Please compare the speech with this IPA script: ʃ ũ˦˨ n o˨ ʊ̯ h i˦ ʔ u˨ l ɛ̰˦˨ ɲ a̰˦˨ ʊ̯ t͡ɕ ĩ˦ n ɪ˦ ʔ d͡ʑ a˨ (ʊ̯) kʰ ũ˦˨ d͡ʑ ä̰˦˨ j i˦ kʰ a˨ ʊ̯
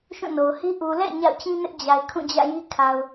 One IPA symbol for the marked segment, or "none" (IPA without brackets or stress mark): ɪ̯